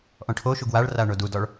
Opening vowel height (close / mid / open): mid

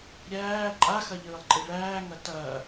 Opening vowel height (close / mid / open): open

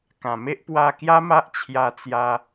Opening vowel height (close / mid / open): open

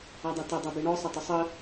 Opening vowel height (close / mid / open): open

